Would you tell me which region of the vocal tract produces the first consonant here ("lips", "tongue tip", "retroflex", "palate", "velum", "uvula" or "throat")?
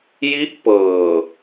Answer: palate